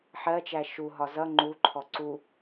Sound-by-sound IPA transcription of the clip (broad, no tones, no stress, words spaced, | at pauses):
ħɜt͡ʃæ ʃuɦɒ zʌ ŋ͡ǃuǃʰɔ ǀu